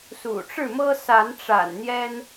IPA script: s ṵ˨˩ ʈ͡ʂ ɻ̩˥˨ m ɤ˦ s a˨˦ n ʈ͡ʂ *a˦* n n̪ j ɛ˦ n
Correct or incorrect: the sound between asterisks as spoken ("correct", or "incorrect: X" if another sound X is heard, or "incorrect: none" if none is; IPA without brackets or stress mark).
incorrect: a̰˨˩